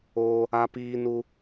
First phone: oː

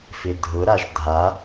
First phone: f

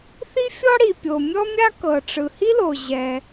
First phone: θ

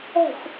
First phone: ɛ̤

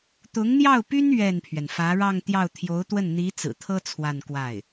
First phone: t̪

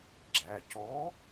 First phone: ɡ͡ǁ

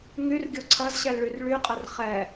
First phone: ŋ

